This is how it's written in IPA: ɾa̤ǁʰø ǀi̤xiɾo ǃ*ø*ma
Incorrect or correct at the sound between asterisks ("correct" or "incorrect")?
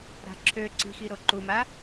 incorrect